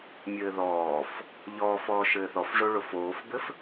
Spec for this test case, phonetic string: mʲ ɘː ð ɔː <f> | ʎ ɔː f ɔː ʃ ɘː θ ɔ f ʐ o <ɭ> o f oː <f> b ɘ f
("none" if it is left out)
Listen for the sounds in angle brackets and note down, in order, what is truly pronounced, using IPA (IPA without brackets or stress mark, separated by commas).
f, ɭ, f